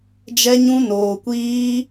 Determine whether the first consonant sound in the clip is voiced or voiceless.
voiced